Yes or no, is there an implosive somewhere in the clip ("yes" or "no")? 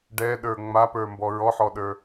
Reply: yes